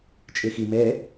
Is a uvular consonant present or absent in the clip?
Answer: absent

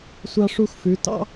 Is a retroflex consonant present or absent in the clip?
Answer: present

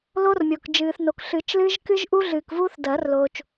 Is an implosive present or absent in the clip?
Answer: absent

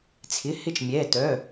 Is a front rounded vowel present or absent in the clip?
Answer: present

